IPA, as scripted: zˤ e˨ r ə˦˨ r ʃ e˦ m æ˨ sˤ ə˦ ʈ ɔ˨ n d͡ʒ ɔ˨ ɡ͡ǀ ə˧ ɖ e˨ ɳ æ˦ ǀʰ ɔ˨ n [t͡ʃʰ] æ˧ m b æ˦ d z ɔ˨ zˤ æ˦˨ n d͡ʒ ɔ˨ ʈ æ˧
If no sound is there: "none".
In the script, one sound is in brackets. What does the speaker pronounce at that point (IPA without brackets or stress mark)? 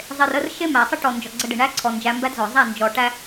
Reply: d͡ʒ